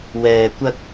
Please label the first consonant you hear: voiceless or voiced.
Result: voiced